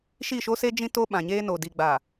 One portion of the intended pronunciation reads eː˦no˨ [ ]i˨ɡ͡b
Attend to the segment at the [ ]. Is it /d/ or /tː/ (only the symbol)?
d